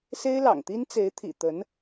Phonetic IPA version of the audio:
s e˥ ɪ̯ l ɑ̰˨˩ ŋ t̪ i˥ n t͡s e˧˥ ɪ̯ t̪ʰ ḭ˨˩ t̪ ə˧˥ n

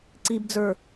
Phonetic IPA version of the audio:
ǀ i b d͡z ə˞

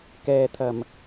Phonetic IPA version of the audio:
k ɛː˨ t̪ʰ ɐ˨˩ m

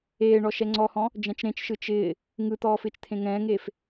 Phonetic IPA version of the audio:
eː ɳ ɔ ʃ ɛ ŋ͡ǀ ɔ h ɔ̃ | d͡ʒ ɛ̃ t͡ʃ ɾ ẽ t͡ʃ ʃ ɯ t͡ʃ ɪː | ŋ ɯ t̪ ɔː f ɪː t͡ʃ t̪ʰ ẽ ŋ ɛ̃ː ŋ eː f

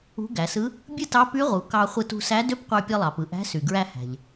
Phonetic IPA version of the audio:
ṳ˧˥ ɡ æ˩˧ s ɯ˧˥ | bʲ ɯ˥ t ɑ˧˥ p y˧˥ ʁ u˩˧ k ɑ˧ χʷ ɯ˧ t ṳ˧ s æ˧˥ d ø˧˥ p qʷ ɑ˧ pʲ ɯ˧ lˠ ɑ˩ p ɯ˩ ʔ æ̤˧˥ s y˩ ɡ ɹ æ˧ h æ̤˩ ʎ

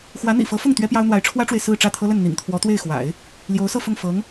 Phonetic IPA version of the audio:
x w ä˧˥ n̪ ḭ˨˩ f ɤ˧˥ f ʊ˥˩ ŋ t̪ ɥ ɛ˥ p j ɑ˥ ʊ̯ n̪ w a˧˥ ɪ̯ ʈ͡ʂʰ w ä˥ ʈ͡ʂ w e˨ ɪ̯ s ɹ̩˥˧ ʈ͡ʂ ä˥˩ t̪ʰ ɤ˥ l ə˥˩ n n̪ ḭ˨˩ ŋ t̪ʰ w ɔ˧˥ t̪ w e˥˩ ɪ̯ x w a̰˨˩˦ ɪ̯ | l j o˧˥ ʊ̯ s ɤ˥˧ f ʊ˥˩ ŋ f ɤ˧˥ ŋ

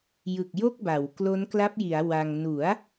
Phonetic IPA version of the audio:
j ɯ˨˩ k̚ j o˥˩ k̚ b a˩˦ w k l o˦˥ n k l a˦˥ p̚ j i˩˦ a̯ w a˧ ŋ n u˩˦ a̯

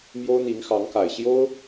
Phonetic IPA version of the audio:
m j o˥ ʊ̯ n̪ i˧˥ ŋ x ɑ˧˥ ŋ k a˨˩ ɪ̯ ɕ j o˥ ʊ̯

